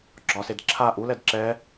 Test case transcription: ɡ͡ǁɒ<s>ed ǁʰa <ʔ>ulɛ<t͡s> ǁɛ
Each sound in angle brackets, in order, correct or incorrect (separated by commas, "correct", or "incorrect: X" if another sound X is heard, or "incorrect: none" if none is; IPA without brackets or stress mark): correct, correct, incorrect: d